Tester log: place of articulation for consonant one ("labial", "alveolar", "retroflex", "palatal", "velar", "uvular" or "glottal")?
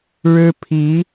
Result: retroflex